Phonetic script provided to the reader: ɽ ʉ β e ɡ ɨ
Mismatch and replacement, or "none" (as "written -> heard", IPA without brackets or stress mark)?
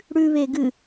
none